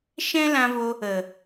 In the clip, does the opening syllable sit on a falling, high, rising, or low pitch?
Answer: high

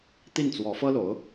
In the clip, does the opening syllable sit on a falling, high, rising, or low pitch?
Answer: falling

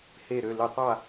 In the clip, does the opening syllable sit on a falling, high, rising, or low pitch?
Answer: falling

